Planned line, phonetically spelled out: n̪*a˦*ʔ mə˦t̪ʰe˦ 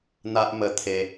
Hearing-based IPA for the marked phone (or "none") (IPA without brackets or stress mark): a˦